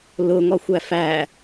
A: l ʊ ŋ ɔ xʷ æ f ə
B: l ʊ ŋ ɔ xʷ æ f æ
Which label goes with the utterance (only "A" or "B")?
B